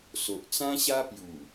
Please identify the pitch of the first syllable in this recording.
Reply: low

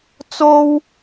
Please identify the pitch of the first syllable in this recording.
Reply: high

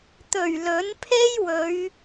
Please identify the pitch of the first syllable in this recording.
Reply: low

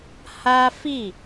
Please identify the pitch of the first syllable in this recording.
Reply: high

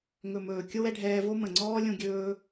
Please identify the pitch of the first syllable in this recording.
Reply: low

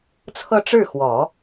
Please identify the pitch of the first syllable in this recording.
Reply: falling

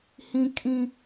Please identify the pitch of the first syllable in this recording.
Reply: high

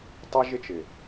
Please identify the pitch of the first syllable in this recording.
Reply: high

